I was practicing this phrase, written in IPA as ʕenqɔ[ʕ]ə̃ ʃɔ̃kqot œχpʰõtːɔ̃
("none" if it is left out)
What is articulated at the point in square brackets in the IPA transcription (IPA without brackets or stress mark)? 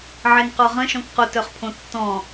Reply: ʁ